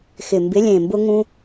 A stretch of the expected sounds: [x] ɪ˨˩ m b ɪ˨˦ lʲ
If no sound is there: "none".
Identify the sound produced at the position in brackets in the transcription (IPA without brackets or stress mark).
x